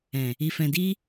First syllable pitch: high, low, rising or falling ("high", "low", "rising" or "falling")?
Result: low